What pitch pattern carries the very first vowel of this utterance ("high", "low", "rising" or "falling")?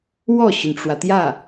falling